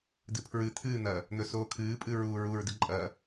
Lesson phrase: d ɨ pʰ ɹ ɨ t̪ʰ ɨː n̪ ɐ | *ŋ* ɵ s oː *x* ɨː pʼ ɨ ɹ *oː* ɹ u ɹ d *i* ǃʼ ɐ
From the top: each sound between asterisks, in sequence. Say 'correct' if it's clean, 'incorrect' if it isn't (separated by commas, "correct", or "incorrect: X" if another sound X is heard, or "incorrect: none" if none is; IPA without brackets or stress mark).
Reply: incorrect: n̪, incorrect: kʰ, incorrect: uː, incorrect: ɨ